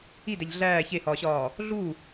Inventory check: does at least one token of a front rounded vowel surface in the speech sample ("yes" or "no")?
no